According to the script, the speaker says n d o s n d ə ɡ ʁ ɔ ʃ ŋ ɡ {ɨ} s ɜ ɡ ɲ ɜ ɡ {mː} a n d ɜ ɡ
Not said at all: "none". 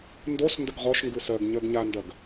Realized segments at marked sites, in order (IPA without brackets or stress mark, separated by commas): ɨ, ɲ